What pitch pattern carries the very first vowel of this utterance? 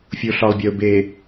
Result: low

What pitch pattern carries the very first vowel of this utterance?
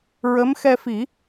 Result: rising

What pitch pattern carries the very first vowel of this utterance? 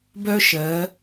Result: high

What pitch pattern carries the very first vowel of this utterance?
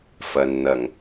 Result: low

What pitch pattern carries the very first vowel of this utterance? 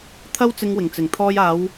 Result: high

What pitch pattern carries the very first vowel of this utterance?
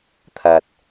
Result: low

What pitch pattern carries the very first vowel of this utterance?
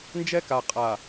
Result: high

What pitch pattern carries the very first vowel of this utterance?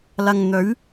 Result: low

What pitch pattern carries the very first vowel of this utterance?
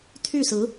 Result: falling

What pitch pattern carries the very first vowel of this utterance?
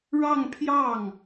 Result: falling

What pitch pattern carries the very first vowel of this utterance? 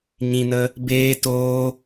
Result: low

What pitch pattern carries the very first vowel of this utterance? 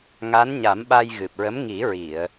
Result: rising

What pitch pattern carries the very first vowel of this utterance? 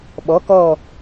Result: rising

